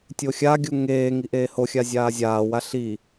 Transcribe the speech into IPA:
tʲoxʲaɡʲu ŋeː ŋiʔeːhoxʲa zʲaːzʲaːwa ɬi

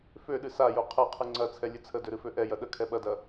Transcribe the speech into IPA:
føɗɨ sajo qʰɛqʰɨ ŋ͡ǀɐt͡sʰɛ lʲɨt͡sʰədø ɾɨføʔɛjɐ ɗə kʰɛɓɐdɐ

